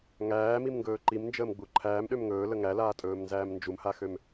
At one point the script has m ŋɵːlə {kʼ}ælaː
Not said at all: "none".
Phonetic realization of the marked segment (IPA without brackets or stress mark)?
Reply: ŋ